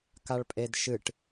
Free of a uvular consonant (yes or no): yes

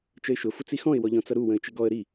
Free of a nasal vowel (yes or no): no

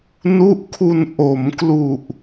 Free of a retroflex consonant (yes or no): yes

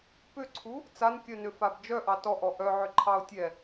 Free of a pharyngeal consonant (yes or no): no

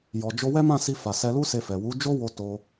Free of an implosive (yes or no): yes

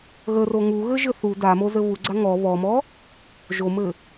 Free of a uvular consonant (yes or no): yes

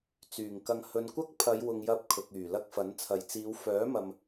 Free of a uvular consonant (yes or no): yes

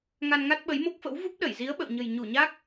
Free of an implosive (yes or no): no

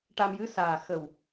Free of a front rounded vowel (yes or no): yes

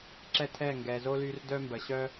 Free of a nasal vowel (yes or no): yes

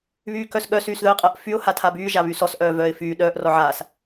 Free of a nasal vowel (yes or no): yes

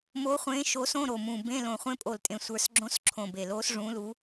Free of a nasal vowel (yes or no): no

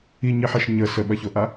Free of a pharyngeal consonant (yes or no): no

